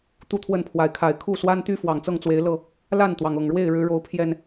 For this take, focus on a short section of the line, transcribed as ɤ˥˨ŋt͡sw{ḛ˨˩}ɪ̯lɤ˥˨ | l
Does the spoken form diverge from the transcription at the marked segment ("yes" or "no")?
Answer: yes